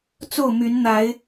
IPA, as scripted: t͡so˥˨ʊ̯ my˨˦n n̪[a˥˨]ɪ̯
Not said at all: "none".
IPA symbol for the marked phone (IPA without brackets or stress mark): a˨˦